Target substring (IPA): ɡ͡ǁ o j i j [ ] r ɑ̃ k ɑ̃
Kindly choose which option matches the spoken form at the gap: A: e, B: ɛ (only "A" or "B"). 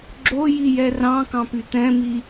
B